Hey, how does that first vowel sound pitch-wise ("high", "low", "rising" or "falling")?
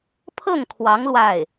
falling